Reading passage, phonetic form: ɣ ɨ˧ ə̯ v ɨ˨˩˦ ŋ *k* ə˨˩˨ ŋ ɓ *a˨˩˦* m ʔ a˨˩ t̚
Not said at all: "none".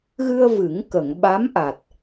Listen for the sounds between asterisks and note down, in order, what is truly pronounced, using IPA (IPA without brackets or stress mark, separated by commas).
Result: k, a˧˥